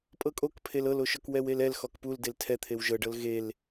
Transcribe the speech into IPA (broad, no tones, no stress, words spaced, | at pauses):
pʼɤkʼok pʰelɤloʃɔk wɛwelɛl xɔkpuldel tʰɛt̪ʰew ʒɤɖɤl ɣel